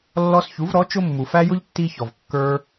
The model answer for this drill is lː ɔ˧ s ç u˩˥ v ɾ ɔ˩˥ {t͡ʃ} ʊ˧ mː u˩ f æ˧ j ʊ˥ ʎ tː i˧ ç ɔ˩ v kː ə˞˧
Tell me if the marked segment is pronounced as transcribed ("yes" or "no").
yes